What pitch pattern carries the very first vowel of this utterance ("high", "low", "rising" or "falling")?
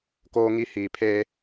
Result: high